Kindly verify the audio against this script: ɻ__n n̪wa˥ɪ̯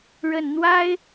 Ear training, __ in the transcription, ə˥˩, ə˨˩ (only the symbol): ə˨˩